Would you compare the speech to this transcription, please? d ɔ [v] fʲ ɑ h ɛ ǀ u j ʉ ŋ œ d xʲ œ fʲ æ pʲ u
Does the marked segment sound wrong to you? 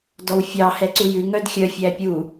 yes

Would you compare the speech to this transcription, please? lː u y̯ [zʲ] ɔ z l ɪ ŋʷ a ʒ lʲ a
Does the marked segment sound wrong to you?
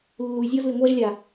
no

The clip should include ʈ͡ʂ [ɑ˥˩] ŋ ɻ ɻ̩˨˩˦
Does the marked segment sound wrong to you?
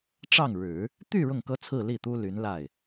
no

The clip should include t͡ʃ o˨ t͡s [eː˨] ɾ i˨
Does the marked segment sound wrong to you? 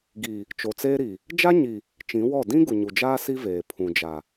yes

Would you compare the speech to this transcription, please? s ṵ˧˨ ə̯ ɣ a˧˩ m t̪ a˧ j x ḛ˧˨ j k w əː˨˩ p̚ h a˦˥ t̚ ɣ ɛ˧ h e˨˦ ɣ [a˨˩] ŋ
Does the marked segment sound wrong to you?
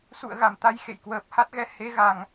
no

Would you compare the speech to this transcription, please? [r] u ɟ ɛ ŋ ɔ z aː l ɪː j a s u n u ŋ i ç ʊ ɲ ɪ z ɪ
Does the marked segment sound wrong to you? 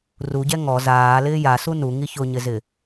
no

